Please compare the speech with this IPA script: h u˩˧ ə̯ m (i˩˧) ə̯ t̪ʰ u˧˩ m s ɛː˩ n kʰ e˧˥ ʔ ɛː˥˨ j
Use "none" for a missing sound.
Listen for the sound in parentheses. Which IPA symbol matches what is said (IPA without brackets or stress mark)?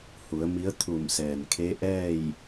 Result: i˧˥